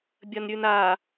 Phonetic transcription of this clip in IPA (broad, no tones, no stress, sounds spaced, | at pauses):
bʲ ɐ n ɾʲ ʉ n a